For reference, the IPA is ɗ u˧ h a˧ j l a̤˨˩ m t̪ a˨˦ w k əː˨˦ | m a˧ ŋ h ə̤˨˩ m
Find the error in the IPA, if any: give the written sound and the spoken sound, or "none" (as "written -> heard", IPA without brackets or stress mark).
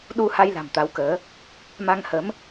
ə̤˨˩ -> ə˨˦